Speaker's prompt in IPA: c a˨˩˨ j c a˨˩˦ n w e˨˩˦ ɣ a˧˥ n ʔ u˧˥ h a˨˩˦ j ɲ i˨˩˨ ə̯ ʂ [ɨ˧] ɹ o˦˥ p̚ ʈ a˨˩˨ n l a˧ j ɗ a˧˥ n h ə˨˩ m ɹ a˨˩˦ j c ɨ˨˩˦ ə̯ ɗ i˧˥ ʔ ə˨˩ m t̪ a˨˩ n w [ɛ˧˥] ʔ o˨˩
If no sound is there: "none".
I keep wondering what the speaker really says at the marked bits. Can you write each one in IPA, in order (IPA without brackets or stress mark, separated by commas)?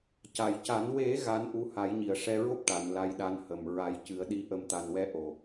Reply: ɛ˧, ɛ˧˥